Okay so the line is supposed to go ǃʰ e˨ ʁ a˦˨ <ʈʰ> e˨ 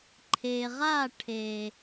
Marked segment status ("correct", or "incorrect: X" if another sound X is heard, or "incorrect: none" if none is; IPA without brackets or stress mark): correct